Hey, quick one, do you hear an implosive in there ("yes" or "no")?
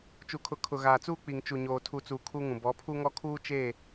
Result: no